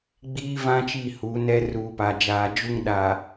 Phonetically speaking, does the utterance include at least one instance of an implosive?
yes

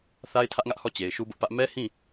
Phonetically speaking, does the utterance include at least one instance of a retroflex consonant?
no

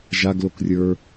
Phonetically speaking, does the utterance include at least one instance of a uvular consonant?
no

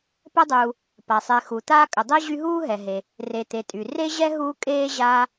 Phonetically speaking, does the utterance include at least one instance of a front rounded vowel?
yes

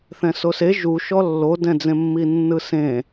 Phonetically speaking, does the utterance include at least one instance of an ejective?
no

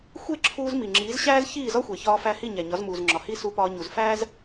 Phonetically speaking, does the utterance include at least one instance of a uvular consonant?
no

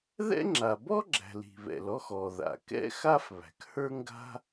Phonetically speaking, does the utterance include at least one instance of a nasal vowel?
no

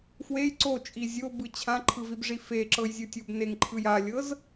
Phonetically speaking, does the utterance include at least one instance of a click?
yes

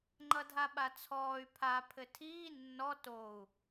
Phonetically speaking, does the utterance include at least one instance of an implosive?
yes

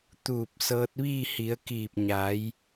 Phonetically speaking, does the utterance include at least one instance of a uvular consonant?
no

